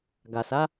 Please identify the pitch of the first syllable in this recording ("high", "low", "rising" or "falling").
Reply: low